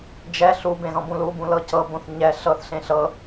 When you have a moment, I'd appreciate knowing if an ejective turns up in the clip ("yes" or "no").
no